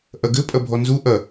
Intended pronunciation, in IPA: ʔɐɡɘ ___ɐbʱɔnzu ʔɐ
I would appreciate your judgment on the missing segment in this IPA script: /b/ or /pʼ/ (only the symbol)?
pʼ